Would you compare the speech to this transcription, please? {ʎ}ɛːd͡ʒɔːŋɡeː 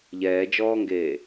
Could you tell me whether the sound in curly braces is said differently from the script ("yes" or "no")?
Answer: no